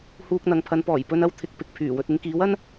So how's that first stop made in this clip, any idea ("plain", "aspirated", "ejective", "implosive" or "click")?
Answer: plain